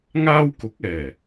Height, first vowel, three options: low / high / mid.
low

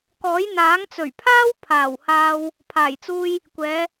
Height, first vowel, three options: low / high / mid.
mid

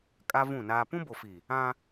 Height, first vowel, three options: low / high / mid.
low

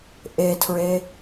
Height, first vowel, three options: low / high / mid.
mid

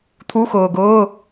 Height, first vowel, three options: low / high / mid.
high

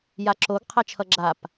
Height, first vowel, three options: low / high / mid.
low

